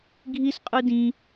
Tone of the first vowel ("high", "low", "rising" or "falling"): high